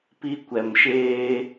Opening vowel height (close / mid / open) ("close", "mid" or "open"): close